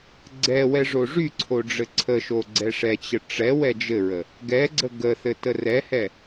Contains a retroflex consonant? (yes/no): yes